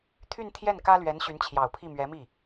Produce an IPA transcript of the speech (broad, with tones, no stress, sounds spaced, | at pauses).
t̪ʰ y˥˧ n t̪ʰ j ɛ˥˩ n k ä˥ l ɥ ɛ˧˥ n ɕ y˧˥ n t͡ɕʰ j ɑ˨˩ ʊ̯ pʰ i˥˩ m ɥ ɛ˧˥ m i˥˩